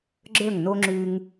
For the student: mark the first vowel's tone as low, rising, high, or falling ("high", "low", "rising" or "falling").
falling